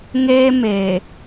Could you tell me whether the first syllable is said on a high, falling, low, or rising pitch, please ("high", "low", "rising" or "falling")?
high